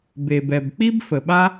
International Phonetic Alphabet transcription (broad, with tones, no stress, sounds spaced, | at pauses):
b e˩ b ɛ˩ b k͡p i˦ b f ə˩ ɓ a˦